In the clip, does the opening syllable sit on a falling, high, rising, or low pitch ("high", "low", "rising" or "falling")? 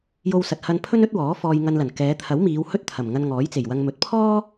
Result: high